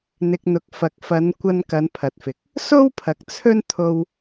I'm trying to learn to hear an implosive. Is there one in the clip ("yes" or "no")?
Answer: no